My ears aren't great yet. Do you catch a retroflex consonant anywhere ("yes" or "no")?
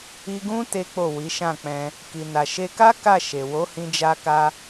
no